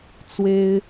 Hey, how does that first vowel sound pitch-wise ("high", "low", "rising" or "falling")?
high